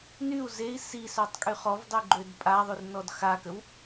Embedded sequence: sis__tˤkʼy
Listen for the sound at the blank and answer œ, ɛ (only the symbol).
œ